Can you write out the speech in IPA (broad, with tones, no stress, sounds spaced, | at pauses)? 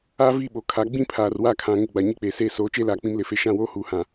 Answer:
aː˦ v i˦˨ ɓ o˨ kʰ a˨˦ ɡ͡b ĩ˦ pʰ aː˨ r w a˦˨ kʰ ã˨ ŋ ɪ˦˨ ɡ͡b a˨ ɲ i˦ k͡p eː˨ s eː˦˨ s oː˨˦ t͡ʃ eː˦ l aː˨ k͡p ĩ˦ m l ɪ˨˦ f e˦ ʃ ã˦˨ w oː˦ h uː˨ h ã˨